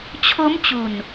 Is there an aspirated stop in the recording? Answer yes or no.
yes